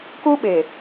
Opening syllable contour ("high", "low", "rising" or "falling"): high